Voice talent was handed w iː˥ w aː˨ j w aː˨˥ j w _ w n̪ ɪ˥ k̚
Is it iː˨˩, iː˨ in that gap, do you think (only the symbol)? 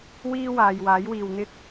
iː˨